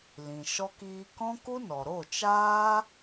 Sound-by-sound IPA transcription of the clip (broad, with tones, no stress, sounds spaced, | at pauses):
l ĩ˨ ʃ ɔ˧ k iː˧ k ɔ̃˦ k u˦ n ɔ˨ ɾ o˦˨ t͡ʃ aː˦